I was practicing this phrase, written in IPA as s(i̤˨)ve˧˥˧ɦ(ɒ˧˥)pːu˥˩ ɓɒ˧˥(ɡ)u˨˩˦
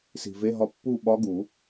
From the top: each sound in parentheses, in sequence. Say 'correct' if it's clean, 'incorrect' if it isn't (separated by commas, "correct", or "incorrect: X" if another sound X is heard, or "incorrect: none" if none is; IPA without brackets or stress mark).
correct, correct, correct